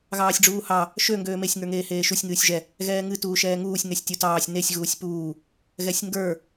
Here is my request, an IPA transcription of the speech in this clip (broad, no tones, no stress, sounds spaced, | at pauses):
ɣ ɑː sʲ ɖ͡ʐ uː h ɑ | ʃ ø ŋ ɡ øː m e sʲ ŋ ə˞ ŋ eː h eː ʃ u sʲ ŋ ɨː sʲ ʒ ɛ | ɣ ɛː ŋ ɨ t uː ʃ ɛː ŋ uː sʲ ŋ ɛ sʲ tʲ u t ɑː sʲ n e sʲ ɣ uː sʲ p uː | ɣ ɛ sʲ ŋ ɡ ə˞